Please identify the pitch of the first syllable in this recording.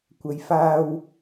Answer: low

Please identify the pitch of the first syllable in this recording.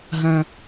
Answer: high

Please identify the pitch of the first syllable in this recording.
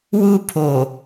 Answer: high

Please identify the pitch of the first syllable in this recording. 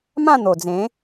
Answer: falling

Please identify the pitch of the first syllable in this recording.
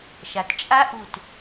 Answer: low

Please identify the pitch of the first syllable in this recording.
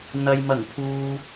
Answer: low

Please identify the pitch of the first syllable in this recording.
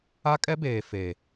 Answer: high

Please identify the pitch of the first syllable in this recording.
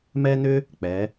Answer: high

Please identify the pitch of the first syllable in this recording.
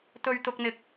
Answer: high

